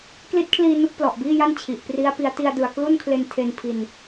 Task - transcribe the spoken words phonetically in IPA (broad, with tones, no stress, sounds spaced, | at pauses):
k l i˦˥ t̚ kʰ l iː˧ n u˦˥ k̚ p l ɔ˨˩ ʔ b iː˥˩ j a˥˩ n t͡ɕʰ i˨˩ ʔ p r i˦˥ a̯ p i˦˥ a̯ t i˧ a̯ d ɯ˨˩ a̯ k l u˥˩ n kʰ l e˧ n tʰ e˧ n pʰ i˧ n